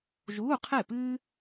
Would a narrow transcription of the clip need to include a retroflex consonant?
no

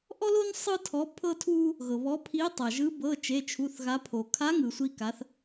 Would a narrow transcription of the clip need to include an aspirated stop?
yes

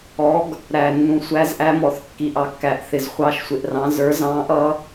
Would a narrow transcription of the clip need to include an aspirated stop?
no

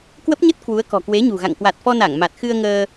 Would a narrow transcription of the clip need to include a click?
no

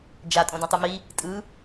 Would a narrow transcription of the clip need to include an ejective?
yes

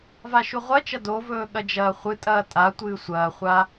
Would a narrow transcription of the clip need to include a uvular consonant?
yes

